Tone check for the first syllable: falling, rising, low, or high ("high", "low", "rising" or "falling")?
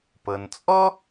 low